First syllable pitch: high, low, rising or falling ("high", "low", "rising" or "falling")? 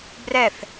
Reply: falling